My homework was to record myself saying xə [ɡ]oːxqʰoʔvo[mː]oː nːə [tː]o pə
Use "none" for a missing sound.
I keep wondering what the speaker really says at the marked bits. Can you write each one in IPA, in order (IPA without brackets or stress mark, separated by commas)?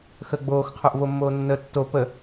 ɡ͡b, mː, tː